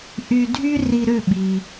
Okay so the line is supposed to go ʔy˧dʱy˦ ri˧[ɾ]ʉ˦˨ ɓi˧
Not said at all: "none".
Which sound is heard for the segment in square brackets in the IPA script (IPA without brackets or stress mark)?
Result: ɾ